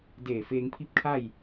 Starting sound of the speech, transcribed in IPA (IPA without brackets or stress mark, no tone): d